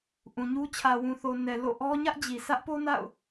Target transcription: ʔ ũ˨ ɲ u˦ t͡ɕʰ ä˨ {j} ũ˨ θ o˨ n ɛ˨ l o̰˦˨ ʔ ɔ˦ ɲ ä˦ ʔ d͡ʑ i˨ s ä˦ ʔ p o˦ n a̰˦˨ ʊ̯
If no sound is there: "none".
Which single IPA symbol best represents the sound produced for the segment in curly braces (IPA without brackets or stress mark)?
w